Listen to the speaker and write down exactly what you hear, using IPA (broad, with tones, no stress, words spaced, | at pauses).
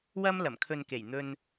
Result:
wɐ˥m lɐ˨˩mkʰɵ˨nke˨˩j n̪ɵ˧n